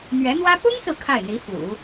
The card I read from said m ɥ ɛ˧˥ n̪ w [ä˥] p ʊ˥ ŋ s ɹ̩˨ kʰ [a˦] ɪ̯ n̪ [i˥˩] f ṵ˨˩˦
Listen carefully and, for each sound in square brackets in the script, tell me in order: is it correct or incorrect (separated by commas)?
correct, incorrect, incorrect